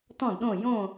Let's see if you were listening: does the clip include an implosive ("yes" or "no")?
yes